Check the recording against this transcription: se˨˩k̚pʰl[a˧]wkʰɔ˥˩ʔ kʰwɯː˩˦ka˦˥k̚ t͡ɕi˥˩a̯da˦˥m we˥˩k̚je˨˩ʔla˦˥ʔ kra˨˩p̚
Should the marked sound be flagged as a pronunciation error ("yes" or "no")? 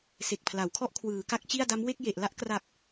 yes